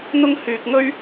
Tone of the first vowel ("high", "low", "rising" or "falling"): high